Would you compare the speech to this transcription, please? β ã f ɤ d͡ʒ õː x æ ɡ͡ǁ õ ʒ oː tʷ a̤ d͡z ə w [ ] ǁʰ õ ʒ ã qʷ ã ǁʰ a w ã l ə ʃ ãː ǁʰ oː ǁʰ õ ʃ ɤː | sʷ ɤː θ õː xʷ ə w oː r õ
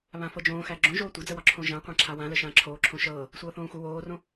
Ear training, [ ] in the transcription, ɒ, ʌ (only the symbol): ɒ